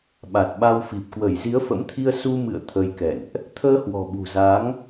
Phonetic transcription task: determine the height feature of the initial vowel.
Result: low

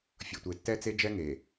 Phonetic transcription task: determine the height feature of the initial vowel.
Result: mid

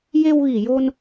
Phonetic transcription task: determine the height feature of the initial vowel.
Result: mid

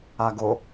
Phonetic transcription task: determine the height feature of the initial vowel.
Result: low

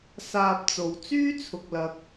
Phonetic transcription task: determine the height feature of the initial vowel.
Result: low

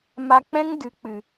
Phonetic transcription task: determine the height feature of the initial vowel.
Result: low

